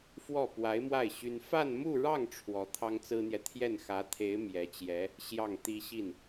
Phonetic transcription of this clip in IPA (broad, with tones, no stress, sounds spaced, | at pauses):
f w ɔ˥˩ p w a˧˥ ɪ̯ m w a˥˩ ɪ̯ ɕ y˥ n f a˥˧ n m u˥˧ ɻ ɑ˥˩ ŋ ʈ͡ʂʰ w ɔ˧˥ t̪ʰ ɑ˥ ŋ t͡s ɹ̩˥ n̪ j ɛ˨ t̪ʰ j ɛ˥˩ n x ä˧˥ t̪ʰ e˧˥ ɪ̯ m j ɛ˧˥ t͡ɕ j ɛ˧˥ | ɕ j ɑ˥˩ ŋ t̪ i˥ ɕ i˥˩ n